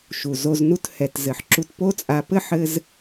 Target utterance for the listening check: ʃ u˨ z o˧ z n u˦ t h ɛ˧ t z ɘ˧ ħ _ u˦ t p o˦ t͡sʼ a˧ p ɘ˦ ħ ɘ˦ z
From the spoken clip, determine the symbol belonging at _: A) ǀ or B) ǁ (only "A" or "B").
B